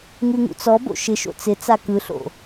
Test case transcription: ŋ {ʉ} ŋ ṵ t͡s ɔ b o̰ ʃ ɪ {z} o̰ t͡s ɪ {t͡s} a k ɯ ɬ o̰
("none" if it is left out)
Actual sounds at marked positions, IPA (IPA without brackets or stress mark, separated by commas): ʉ, ʃ, t͡s